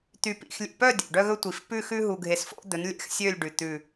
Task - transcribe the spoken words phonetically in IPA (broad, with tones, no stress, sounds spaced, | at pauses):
t̪ y˨ p ḭ˨ x lʲ ḛ˨ p œ˦˨ dʲ o̰˨ ɖ œ˦ ɣ ɵ˦ tʷ i˨ f p ʉ˦˨ x ʉ˦ ɦ u˨ ɡʱ e˨ s f o̰˦ d̪ ɵ˨˦ n lʲ ɛ̰˨ x sʲ ø˦˨ lʲ ɖ ʉ˨ t̪ ʉ˦˨